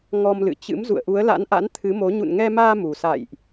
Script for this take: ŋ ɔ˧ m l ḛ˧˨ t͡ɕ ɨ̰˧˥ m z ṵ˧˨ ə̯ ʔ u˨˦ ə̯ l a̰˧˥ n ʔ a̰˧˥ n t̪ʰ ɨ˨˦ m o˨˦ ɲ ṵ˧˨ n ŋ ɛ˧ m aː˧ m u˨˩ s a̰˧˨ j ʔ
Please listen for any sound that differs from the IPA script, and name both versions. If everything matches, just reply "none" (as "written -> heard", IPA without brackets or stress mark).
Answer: ḛ˧˨ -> ɨ̰˧˨